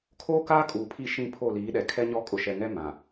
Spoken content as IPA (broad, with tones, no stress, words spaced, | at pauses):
kʰoː˦kaː˦ kʼuː˨pʰi˦˨ ʃĩ˦˨pʰo˦˨liː˨˦ɗɛ˨ kʰɛ˦ɲɔ˦ kʼʊ˨ʃɛ˨ŋɛ˦ mã˨